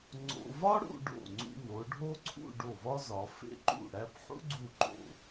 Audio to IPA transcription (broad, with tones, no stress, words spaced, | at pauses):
ŋ͡ǀo̰˧v ɒ˥ ɽṵ˧ ɖo̰˧˩ŋ͡ǀṵ˧no˩˧ ɖʱo˥ǀʰṵ˥˧ ɖo˧˩vɒ˥zɒ˩˧ fḛ˧ǃṵ˧˩ɽæ˧p ħṵ˥ɡ͡ǀu˧˩ǃo̰˧˩